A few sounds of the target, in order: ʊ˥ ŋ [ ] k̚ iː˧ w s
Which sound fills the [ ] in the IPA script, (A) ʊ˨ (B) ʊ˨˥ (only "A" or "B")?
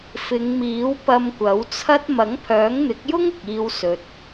A